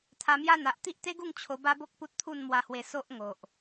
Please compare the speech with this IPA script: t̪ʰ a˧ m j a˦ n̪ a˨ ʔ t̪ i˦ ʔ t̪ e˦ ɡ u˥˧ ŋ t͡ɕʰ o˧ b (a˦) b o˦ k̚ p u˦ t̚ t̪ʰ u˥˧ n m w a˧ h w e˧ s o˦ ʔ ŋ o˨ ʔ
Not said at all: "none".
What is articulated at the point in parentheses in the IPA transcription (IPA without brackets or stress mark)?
a˦